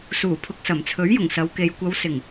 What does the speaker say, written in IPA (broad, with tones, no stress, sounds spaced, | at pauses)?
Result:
s uː˨˩ pʰ ʊ˨ k̚ s ɐ˨˩ m t͡sʰ ɵ˨˥ ɥ j ʊ˨˩ ŋ s ɐ˨˧ w k e˨ j kʷ ɐ˨˧ w s ɪ˨˩ ŋ